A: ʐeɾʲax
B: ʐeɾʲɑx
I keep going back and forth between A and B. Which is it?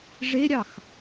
B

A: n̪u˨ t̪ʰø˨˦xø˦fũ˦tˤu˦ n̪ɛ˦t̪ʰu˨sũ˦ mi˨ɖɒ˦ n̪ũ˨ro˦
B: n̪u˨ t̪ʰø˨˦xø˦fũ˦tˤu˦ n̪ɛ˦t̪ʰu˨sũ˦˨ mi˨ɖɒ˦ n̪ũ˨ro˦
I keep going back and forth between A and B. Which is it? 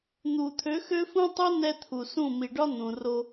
B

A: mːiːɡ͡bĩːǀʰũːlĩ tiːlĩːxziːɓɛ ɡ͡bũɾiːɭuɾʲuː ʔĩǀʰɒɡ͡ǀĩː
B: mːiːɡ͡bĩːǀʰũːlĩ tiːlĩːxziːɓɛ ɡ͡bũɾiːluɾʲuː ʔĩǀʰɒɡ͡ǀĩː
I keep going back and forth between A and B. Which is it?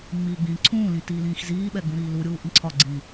B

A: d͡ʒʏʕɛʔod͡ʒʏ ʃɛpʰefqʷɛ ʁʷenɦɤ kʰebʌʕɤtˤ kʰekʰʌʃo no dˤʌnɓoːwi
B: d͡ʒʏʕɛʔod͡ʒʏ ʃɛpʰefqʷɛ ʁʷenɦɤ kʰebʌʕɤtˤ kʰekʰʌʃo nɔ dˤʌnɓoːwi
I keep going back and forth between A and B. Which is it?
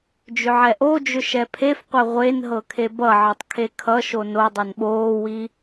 A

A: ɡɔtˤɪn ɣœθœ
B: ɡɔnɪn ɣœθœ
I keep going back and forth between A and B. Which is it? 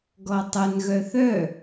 A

